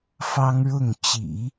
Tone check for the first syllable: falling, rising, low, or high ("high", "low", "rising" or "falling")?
high